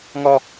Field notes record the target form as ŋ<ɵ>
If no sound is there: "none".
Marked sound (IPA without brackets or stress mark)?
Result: ɔ